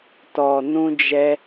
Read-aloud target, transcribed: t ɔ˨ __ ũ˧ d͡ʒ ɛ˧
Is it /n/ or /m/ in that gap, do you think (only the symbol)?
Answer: n